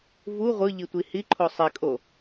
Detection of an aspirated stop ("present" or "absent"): present